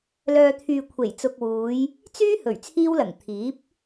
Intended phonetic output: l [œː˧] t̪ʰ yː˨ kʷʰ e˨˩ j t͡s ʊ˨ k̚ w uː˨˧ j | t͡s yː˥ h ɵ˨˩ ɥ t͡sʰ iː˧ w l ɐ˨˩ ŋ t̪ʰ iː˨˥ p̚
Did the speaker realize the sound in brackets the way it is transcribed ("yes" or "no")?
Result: no